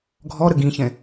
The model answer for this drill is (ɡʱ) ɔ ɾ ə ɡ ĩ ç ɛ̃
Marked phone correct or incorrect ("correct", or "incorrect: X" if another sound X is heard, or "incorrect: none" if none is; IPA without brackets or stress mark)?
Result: correct